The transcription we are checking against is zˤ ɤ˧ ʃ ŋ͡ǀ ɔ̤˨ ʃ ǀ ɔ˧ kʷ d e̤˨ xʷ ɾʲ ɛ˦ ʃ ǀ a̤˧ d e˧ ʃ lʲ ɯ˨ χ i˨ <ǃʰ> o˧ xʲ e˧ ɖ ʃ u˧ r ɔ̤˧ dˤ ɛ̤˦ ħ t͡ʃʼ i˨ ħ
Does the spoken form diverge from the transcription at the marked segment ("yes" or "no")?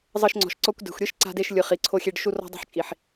yes